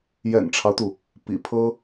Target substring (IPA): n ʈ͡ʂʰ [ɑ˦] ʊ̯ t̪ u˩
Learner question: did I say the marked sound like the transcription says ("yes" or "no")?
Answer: yes